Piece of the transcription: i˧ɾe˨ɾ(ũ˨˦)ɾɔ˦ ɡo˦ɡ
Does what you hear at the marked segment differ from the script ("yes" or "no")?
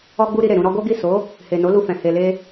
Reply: yes